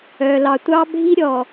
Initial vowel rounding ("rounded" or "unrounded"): rounded